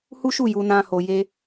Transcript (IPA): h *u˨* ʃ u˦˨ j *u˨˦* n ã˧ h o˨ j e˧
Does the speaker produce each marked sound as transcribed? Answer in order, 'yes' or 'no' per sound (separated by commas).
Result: no, no